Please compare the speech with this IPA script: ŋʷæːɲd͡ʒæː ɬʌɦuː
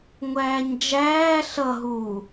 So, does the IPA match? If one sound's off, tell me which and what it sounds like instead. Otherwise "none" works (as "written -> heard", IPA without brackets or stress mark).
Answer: none